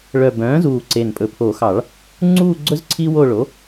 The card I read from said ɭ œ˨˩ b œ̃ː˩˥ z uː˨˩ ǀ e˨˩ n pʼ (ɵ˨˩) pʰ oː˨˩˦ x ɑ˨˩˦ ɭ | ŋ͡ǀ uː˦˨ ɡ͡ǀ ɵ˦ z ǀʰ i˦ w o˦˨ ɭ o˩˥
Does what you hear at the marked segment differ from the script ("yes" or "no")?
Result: no